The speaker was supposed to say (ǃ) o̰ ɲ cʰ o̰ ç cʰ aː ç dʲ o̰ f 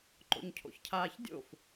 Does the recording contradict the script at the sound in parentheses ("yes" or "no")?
no